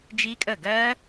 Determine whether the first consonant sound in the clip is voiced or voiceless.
voiced